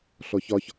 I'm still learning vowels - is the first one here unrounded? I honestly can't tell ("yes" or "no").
no